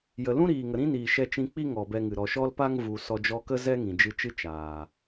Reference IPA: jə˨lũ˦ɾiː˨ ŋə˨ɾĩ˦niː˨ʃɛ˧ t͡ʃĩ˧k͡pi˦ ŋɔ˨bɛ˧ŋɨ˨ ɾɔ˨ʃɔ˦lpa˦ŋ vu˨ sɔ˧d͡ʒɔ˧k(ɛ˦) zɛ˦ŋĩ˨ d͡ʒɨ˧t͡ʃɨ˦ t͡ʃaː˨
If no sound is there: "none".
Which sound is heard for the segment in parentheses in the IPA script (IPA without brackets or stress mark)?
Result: ə˦